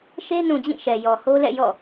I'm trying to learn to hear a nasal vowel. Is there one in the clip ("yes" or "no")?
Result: yes